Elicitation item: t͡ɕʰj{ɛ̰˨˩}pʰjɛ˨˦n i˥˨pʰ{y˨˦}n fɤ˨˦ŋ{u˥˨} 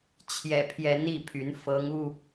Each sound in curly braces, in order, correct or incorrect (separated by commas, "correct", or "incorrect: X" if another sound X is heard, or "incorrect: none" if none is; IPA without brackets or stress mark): correct, correct, correct